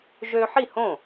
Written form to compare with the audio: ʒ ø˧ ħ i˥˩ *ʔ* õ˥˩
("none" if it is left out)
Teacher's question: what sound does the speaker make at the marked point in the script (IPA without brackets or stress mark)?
h